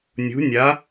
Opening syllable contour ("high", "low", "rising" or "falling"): rising